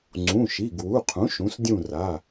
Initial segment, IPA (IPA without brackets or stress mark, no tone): ŋ͡ǀ